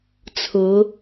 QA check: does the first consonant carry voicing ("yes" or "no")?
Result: no